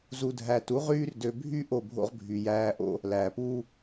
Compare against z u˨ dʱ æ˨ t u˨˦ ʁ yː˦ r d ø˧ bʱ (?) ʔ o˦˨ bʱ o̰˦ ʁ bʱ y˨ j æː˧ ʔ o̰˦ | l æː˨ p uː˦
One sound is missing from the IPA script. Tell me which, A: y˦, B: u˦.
A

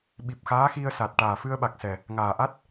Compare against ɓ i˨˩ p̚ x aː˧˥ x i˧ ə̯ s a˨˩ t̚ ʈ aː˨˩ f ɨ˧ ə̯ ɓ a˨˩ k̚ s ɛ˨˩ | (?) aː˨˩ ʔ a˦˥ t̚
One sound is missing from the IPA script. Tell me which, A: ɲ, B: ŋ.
B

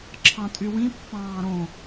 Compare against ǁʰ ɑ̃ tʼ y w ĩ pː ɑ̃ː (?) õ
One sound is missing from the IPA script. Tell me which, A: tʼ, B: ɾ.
B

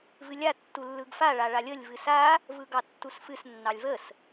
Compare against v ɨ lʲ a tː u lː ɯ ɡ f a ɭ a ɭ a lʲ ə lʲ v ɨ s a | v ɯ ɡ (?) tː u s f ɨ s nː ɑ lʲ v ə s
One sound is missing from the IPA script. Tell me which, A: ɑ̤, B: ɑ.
B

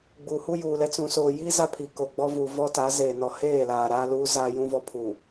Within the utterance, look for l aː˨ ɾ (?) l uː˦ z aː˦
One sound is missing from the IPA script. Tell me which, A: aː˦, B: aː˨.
A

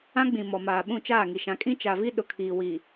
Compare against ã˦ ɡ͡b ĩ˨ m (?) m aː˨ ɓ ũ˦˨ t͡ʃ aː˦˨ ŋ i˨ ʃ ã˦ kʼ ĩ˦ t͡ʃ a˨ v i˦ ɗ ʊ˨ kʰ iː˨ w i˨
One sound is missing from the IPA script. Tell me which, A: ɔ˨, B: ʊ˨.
A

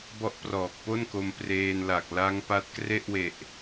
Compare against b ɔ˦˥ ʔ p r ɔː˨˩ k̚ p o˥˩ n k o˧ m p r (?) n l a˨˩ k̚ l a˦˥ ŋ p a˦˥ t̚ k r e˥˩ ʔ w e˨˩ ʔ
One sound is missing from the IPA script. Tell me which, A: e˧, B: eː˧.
B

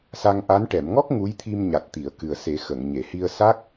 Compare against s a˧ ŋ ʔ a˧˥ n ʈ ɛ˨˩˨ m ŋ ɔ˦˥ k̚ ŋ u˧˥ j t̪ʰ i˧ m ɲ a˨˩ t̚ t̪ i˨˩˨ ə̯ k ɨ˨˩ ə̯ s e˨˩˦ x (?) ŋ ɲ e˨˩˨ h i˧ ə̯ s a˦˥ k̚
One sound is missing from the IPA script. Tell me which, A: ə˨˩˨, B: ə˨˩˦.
A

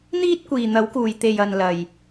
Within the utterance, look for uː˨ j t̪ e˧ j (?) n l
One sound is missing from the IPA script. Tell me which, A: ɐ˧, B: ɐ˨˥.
A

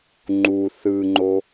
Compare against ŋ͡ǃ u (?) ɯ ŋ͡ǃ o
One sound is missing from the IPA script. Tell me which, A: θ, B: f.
A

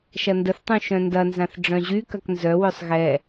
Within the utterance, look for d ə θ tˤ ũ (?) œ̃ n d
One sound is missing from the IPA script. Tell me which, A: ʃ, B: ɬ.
A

